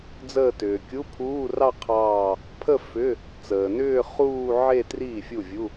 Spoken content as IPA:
d͡z əː˥˧ t ʏː˨ kʲ u˧˥˧ pʰ uː˧˥˧ r ɑ˥˧ qʰ ɑː˥˧ | pʰ ə˥˧ f ʏ˧˥˧ | t͡s əː˨ n ʏː˥˧ χ uː˥˧ ʕ e˥˧ t r i˥˩ fʲ u˥˩ vʲ u˧˥˧

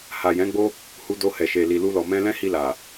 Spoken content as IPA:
h a˨ j ɛ̃˨˦ ɡ͡b o˦ | h u˧ d o˧ h ɛ˨ ʃ e˨ l i˨ l u˧ l ɔ˨ m ɛ̃˧ l ɛ̃˦ h i˧ l a˨

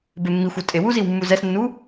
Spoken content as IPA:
b e mː i xʷ o tʼ e w u z i w mː u z ɛ s nː u

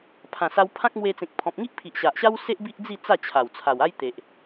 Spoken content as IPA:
pʰ ã˨˩ s a˧ w pʰ ã˦ k̚ m w e˧ t͡s ẽ˨ k̚ pʰ ɔ̃˨ p̚ ŋ i˦ ʔ pʰ i˨ ʔ ɕ a˨ ʔ ɕ a˦ w s e˦ ʔ b i˦ ʔ d͡z i˥˧ t͡s a˥˧ t͡ɕʰ a˨˩ w t͡sʰ a˨˩ w a˦ j t̪ e˨ ʔ

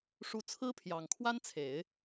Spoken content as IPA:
ʂ u˧˥ t͡sʰ ɹ̩˥ pʰ j ɑ˨˩ ŋ kʰ w a˥ n t͡sʰ e˨˩˦ ɪ̯

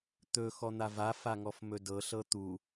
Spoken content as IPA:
t̪ ɵ x ɔ n̪ a v a f a ŋ ɔ f m ɵ d ɤ ɬ ɤ t̪ u

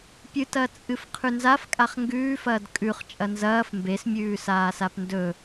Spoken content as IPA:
pʲ ɨ t ɐ t͡sʼ ɨ f qʰ ʉ n z a f kʼ a χ ŋ ɡ ʉː f ɐː d kʼ ʉ χ t͡ʃʼ ɐ n z ɐː f m b e s mʲ ʉː s aː s a p n d ɵ

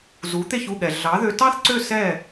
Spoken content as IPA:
z u˩˥ t̪ e˥˩ ç u˥˩ ɠ ɛ˩ ɮ ɑ˩˥ ð ø˧ t ɑ˥ θ ǀ ø˥˩ s ɛ˥˩

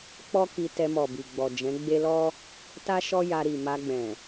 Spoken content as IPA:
k͡p ɔ˦ k i˧ t ɛ˧ m ɔ˨ b i˨ ɡ͡b ɔ˨ d͡ʒ ɛ̃˨˦ ɡ͡b e˦ l ɔ˦ | t a˦ ʃ ɔ˦ j a˧ ɾ i˨ m a˧ ɡ͡b ɛ̃˨

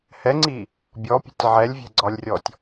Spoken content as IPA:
h ɛ ŋ͡ǀ i | bʲ ɔ pʲ ɛ̤ tʲ ʕ ɛ lʲ vʲ ɛ̤ ɡ͡ǀ ɒ lʲ rʲ ɔ tʲ

